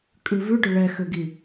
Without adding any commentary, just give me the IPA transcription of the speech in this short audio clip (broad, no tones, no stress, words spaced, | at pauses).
kʼʉvʉɖʏ ɭɛxʏɡi